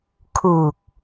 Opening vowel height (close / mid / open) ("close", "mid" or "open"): close